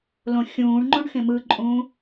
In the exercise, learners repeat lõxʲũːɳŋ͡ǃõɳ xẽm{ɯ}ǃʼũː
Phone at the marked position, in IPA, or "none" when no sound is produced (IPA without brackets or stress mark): ɯ